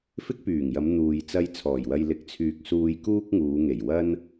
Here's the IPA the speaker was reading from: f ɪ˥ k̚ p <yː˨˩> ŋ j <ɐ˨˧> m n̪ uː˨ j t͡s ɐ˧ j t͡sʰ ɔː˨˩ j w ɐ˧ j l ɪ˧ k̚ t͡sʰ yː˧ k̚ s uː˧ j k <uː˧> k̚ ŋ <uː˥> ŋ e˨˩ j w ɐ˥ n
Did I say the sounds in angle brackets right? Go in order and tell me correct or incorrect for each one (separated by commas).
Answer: correct, correct, incorrect, incorrect